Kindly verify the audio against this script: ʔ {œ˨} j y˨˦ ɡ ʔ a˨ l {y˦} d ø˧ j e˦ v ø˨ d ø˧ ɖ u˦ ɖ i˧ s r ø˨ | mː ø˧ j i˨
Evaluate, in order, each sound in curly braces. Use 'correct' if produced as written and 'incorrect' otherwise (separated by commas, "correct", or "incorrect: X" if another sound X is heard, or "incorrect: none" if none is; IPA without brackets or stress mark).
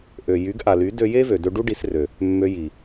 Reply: incorrect: ø˨, incorrect: y˨˦